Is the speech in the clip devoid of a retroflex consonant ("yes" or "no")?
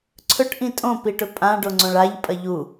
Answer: no